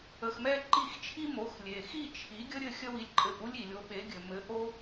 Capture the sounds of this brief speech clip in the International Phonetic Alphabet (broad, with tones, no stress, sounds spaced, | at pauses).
ə˧ x m ɛ˥ ǃ i˥˩ x t͡ʃʰ i˥ m o˩˥ x lʲ e˩ x i˥˩ t͡ʃʰ i˩˥ ɡʲ ə˥ ɾʲ ɘ˥˩ xʲ ə˥ w i˧ lʲ ǃʼ ɘ˧ ʔ u˥ lʲ i˩ lʲ o˩˥ ɓ e˩˥ ɡʲ ɘ˩ m ɘ˩˥ ʔ o˥